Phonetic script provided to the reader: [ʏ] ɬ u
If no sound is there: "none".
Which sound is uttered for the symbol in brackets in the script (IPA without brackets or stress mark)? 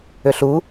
ʏ